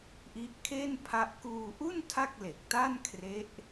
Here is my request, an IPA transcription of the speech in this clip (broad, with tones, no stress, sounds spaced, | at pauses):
ʔ i˦˥ ʔ kʰ e˥˩ n pʰ a˦˥ ʔ k uː˧ ʔ u˥˩ n tʰ a˥˩ k̚ l e˨˩ k̚ t a˥˩ n kʰ r e˦˥ ʔ